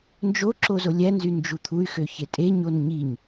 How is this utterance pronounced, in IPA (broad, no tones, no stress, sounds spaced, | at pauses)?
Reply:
n d͡ʒ o ǁ o z o lʲ æ n z y n d͡ʒ u t̪ʰ u y̯ x ø ç e tʼ e ɲ o n ɲ i ɲ